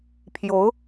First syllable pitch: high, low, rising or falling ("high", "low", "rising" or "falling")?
rising